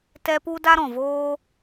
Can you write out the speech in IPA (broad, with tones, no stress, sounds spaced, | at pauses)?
t ɛ˧ p u˦ d a˦ ɾ ɔ̃˨ v oː˦